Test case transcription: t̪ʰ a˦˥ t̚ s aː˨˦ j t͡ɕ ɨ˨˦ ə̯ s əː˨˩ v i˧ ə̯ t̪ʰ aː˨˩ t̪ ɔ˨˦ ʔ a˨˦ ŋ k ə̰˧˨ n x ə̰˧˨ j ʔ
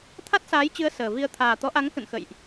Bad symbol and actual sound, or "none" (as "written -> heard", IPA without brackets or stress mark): none